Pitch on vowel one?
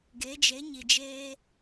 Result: rising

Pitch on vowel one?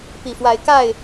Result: low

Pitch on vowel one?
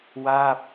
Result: falling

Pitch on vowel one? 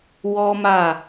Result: high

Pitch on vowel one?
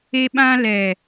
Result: high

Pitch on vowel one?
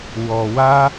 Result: low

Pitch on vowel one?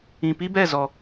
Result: low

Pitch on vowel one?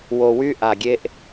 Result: low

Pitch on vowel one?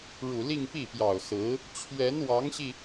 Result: low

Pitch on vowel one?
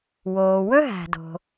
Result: low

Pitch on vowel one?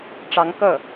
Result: rising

